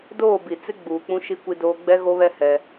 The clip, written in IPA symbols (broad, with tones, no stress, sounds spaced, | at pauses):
d oː˦˨ b i˨ t͡s ɪ˦ ɡ͡b uː˨ k͡p ũ˦ ʃ i˦ kʷ i˦ d oː˦ ɡ͡b ɛ˦ ɣ o˦ β ɛ˦ h ɛ˦